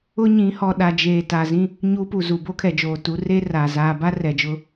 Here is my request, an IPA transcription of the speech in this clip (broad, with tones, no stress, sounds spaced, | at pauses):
ʊ˦ ɲ ĩ˨˦ h ɔ˨ ɗ a˨ d͡ʒ eː˨ t a˨ z ĩ˦ | ɲ u˦ p u˨ z u˨ b oː˦ kʰ ɛ˨ d͡ʒ oː˨ t u˨˦ r eː˦ r aː˨ z aː˨ b a˦ r ɛ˨ d͡ʒ ʊ˦